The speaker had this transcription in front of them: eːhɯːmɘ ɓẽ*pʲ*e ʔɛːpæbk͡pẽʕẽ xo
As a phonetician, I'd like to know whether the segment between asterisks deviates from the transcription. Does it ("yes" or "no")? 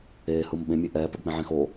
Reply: yes